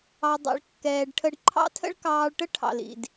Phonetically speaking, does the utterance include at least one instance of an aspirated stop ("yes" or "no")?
yes